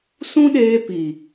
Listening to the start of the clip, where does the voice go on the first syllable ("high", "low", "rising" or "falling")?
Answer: high